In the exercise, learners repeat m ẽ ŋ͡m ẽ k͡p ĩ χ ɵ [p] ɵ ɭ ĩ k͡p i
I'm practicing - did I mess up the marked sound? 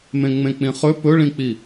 no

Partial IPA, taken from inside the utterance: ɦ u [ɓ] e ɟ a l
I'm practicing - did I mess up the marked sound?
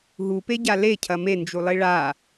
yes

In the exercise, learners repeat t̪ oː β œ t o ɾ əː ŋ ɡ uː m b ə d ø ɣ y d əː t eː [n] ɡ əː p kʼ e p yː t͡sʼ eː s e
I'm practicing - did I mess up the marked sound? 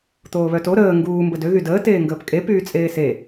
yes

